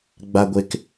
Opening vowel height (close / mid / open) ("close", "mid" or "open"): open